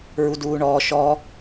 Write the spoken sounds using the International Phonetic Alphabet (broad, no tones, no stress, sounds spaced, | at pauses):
ɹ u d uː ɳ ɔː ʃ ɔ